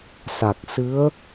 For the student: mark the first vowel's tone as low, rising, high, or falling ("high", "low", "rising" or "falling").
low